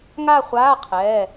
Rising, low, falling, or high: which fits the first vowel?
falling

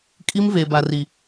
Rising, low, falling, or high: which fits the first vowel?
high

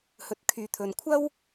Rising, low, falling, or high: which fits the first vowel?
low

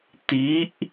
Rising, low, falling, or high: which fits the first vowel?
rising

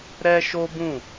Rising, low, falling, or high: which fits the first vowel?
high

